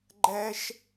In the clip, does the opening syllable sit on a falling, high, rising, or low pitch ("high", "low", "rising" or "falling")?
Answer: high